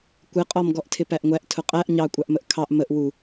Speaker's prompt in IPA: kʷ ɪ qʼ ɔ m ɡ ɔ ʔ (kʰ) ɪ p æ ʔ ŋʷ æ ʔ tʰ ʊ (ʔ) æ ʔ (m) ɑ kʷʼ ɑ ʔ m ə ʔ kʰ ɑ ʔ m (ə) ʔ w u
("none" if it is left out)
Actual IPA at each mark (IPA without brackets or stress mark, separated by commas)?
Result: tʰ, qʼ, ɲ, ə